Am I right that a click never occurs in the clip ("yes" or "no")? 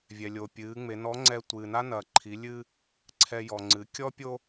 no